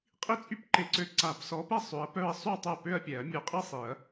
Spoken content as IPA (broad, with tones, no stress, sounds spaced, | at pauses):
qʼ i˥˧ t͡sʼ y˥˧ p ǃ e˨˥ ǀ ø˨˥ ǀ a˨˩˦ p s ɔ˨˥ p ɛ˥˩ sˤ ø˨˥ ɐ̯ p œ˥˧ ɐ̯ sˤ y˥˩ ɐ̯ tˤ œ˥˩ p ø˥˧ ɐ̯ pʲ ɛ˨˩˦ ɐ̯ mʲ œ˨˥ qʼ i˥˧ sˤ i˨˩˦ ɐ̯